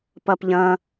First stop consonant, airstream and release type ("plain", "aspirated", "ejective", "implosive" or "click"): plain